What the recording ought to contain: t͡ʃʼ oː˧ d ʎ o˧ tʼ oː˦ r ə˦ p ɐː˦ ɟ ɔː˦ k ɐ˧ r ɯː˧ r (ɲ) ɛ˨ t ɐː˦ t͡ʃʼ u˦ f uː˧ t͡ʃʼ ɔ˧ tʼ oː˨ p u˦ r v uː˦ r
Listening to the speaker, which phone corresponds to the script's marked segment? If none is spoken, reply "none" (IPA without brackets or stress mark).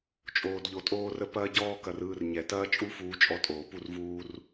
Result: ɲ